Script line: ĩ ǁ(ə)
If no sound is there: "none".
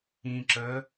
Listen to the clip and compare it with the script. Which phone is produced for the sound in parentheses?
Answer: ə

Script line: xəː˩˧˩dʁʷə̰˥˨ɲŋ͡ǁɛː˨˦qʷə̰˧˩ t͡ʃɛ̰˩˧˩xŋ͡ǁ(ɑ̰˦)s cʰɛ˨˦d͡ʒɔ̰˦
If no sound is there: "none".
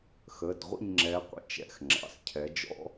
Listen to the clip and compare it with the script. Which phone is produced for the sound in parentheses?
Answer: ɑ̰˩˧˩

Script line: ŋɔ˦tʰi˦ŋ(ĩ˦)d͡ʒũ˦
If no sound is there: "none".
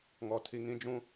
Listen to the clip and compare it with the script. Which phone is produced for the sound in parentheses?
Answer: ĩ˦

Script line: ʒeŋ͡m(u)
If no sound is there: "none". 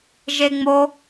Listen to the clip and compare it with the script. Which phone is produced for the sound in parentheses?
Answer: o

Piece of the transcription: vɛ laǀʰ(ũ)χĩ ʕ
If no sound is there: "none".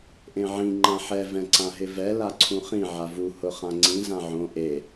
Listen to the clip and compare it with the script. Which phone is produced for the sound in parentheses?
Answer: ũ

